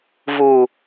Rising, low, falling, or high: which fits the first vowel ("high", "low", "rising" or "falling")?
low